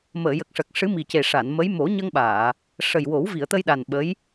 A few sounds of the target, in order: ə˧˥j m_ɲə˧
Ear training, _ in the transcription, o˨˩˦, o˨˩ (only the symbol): o˨˩˦